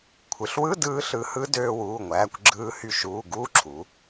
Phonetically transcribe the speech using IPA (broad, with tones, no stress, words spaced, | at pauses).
kʷʰɯ˩˧ɬ wɯ˧˥˧dɯː˧ ɬɯ˧ hɯ˦˥ døː˧wuː˩˧˩ŋʷæː˩˧˩kʷ ɡ͡ǁɯː˧hy˧ ʃuː˩˧˩ ɡuː˦˥ǁʰu˩˧